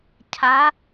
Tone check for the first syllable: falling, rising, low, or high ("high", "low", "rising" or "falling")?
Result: rising